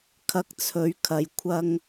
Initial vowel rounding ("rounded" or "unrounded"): unrounded